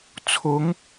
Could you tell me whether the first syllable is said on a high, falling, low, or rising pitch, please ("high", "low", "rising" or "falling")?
rising